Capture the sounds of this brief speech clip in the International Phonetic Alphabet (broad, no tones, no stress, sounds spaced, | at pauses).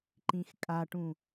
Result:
ǃ ĩ x kʼ a ʈ ũ